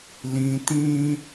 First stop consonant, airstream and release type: plain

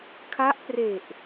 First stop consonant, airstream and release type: aspirated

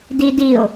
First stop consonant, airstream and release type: plain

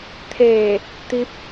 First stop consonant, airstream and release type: aspirated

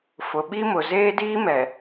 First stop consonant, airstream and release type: implosive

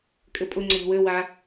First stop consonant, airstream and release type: ejective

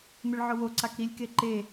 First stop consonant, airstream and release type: click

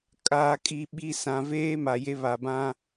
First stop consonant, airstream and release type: ejective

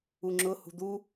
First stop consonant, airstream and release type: click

